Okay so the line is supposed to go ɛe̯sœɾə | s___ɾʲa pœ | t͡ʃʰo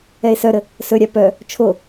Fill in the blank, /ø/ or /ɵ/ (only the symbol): ɵ